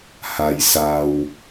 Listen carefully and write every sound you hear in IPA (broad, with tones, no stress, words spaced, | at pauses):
ha˧jsa˧w